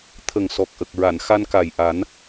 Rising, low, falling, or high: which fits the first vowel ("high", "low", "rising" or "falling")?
low